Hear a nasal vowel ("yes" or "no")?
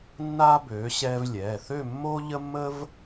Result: no